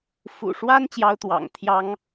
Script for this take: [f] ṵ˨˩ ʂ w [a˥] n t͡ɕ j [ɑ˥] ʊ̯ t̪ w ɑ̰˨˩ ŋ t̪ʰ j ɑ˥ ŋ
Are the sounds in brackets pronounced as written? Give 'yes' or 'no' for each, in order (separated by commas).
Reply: yes, yes, yes